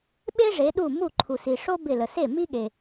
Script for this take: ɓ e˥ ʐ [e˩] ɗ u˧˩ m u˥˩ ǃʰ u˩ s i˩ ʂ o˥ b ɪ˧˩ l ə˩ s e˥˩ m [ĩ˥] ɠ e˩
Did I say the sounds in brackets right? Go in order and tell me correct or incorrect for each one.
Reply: incorrect, incorrect

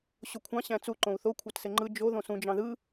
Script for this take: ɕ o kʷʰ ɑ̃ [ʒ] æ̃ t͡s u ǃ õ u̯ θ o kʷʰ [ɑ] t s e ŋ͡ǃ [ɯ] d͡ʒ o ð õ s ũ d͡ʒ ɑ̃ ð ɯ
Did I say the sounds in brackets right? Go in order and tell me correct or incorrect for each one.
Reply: incorrect, correct, correct

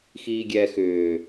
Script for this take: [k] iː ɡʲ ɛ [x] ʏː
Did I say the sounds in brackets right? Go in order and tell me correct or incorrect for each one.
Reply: incorrect, correct

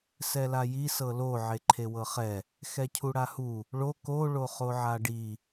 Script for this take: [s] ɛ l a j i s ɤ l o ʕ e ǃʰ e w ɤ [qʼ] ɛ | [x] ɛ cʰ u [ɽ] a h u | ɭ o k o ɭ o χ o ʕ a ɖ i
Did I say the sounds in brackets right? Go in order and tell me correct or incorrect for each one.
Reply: correct, incorrect, correct, correct

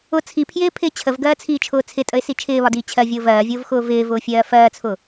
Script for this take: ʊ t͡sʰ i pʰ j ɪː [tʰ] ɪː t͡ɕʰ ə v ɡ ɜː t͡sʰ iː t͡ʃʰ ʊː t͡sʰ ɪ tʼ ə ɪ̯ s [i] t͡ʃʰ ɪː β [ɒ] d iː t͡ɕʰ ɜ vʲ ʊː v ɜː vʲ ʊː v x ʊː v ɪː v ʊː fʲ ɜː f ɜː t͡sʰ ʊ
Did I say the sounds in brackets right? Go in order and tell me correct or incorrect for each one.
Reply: incorrect, correct, correct

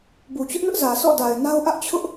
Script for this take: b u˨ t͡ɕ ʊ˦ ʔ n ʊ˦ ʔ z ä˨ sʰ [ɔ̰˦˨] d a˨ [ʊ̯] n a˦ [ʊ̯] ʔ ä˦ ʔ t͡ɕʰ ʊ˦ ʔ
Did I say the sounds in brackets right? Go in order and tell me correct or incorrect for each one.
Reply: correct, incorrect, correct

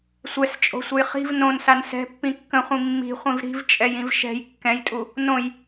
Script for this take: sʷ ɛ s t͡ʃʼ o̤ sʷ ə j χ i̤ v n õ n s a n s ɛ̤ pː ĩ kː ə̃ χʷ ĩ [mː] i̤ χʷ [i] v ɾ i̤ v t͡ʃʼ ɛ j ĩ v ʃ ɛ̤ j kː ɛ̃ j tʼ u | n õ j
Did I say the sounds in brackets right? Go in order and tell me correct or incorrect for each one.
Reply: correct, incorrect

